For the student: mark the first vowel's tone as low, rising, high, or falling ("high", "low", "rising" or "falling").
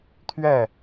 falling